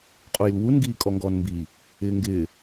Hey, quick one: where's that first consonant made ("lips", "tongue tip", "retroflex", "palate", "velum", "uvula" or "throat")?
uvula